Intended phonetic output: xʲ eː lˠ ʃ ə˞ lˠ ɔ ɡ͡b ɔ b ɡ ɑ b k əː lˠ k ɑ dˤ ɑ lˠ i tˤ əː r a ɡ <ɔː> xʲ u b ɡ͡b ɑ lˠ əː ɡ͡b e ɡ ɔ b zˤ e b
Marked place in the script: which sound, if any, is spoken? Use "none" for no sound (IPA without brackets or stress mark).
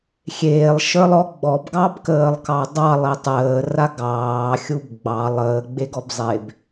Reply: ɑː